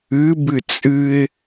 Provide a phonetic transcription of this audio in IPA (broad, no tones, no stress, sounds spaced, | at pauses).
ɨ b ɨ t͡sʼ ɨ ɪ̯